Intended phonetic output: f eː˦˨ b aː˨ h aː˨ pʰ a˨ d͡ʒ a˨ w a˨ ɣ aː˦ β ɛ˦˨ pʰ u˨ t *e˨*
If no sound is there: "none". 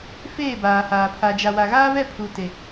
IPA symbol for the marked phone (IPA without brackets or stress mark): e˨